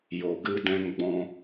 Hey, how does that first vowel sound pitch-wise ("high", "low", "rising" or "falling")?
low